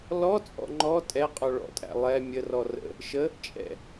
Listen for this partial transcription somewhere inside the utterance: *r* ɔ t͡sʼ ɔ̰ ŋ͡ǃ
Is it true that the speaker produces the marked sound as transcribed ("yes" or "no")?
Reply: no